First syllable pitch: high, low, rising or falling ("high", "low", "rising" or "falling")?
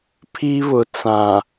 high